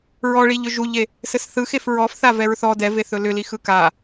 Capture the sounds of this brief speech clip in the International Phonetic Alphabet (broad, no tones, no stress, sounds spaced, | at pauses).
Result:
ɹ ɔ ɭ i ʎ ʏ ʒ u ʎ e | s ɘ s θ ɯ x e f ɹ ɔ f θ a v ɛ ɹ θ ɔ d ɛ v e θ ɵ l ʏ l i x ɯ k a